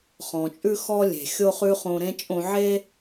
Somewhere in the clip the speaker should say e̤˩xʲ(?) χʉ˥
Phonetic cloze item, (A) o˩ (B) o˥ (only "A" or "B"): B